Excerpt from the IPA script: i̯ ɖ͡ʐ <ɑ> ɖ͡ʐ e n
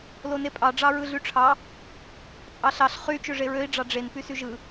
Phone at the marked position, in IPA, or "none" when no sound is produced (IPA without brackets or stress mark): ɑ